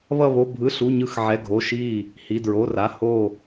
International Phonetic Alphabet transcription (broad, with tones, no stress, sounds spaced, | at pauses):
β ʌ˧˩ β o˩˧˩ bʱ ɯ˩˧˩ ɬ u˩˧˩ ɲ ɯ˧˩ x ʕ ɛ˩˧˩ ɡʱ o˩˧˩ ʃ i˧˩ | h i˩˧˩ d ɹ o˩˧˩ r a˩˧˩ h o˧˩